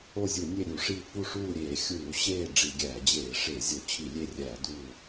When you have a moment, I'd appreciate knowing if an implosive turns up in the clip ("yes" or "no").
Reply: no